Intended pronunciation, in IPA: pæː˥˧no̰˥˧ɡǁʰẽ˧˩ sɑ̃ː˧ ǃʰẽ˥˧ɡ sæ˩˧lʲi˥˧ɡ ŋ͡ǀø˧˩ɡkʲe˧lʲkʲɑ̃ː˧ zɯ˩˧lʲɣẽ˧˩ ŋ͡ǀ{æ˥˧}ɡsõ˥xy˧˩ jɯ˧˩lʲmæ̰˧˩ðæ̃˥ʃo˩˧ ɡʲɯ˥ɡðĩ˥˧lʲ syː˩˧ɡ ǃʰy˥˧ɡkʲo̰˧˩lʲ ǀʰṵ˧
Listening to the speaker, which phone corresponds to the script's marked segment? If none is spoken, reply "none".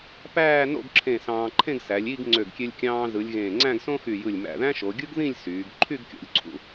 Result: æ̃˥˧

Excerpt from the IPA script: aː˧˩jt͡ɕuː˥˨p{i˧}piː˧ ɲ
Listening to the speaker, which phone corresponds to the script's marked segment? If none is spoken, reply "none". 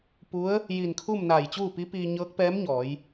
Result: i˧˥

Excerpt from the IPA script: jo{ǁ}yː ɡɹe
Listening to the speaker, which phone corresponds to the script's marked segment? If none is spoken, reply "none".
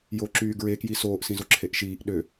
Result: ǁ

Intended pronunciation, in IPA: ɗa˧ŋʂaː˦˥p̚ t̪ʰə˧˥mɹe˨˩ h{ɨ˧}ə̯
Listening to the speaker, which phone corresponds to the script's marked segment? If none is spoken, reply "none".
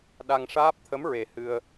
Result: ɨ˧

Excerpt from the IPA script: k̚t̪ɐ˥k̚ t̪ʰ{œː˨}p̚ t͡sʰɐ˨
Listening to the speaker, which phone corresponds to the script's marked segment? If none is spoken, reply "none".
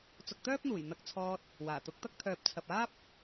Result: œː˨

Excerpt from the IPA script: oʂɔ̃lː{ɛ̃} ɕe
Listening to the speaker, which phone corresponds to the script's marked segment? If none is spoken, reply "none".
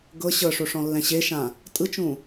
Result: ɛ̃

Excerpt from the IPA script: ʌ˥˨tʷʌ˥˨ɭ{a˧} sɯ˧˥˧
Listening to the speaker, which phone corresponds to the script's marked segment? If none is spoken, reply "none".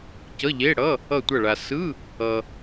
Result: a˧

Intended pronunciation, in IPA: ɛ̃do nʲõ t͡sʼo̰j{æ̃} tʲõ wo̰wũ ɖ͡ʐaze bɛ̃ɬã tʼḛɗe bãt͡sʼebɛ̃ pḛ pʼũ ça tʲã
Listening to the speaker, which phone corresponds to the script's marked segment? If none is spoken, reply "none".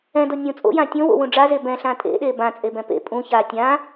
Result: ã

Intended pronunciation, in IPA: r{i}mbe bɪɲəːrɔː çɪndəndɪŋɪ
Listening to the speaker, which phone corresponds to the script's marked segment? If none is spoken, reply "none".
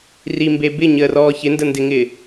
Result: i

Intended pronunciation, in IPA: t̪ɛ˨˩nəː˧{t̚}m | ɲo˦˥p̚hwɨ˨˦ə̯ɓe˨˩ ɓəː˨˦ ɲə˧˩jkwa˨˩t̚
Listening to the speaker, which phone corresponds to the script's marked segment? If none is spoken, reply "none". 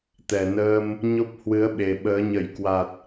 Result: none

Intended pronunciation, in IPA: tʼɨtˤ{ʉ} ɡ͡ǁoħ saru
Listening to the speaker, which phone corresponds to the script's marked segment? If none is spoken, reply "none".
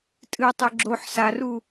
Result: ʉ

